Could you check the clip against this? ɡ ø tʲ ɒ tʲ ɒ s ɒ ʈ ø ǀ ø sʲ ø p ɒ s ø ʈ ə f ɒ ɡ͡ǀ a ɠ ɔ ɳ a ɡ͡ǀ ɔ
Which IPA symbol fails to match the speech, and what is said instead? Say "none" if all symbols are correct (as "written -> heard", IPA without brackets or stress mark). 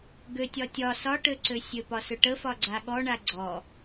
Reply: none